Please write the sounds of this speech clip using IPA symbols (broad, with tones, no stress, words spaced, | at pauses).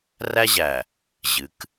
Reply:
ræ˦ʑæ˨ | ʑɨ˨˦k